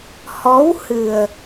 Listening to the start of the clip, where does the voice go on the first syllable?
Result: rising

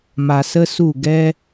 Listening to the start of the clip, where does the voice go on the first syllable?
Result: low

